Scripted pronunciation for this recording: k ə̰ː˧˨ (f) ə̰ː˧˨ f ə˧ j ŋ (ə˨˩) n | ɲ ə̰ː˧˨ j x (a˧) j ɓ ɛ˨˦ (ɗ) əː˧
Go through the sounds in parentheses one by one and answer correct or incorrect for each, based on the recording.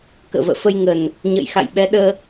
incorrect: v, correct, incorrect: a̰˧˨, correct

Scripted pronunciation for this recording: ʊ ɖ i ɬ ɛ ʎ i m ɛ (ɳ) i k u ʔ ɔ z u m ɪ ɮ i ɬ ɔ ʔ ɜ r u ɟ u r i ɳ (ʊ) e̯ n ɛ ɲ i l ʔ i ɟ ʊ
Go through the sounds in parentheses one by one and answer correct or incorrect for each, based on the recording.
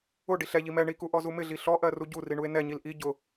correct, incorrect: u

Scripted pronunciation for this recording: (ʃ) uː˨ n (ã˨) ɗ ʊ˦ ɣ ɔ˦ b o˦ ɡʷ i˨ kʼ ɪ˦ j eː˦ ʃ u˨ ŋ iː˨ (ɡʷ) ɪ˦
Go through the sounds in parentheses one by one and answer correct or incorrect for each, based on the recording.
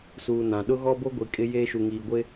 incorrect: s, correct, correct

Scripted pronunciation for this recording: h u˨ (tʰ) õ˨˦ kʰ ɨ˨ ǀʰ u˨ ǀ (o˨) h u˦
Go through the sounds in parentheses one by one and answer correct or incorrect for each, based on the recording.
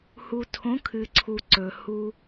correct, incorrect: ɵ˨

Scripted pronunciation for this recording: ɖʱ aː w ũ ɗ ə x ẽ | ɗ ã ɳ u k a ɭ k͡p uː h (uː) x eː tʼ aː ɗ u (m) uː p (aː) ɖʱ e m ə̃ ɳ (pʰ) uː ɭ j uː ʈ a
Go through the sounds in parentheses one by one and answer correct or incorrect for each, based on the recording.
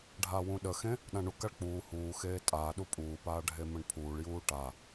correct, incorrect: pʼ, correct, correct

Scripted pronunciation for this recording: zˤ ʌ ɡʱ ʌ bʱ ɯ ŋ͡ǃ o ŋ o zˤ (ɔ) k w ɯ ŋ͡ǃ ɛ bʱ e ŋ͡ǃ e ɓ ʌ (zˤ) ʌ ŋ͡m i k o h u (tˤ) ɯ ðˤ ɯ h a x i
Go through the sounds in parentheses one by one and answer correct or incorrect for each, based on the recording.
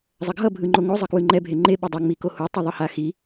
incorrect: ʌ, incorrect: dˤ, correct

